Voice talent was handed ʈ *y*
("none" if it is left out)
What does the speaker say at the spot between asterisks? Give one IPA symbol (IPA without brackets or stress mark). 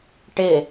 ɪ